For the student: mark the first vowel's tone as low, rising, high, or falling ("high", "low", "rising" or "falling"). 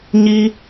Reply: high